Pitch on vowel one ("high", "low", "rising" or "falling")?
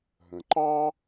low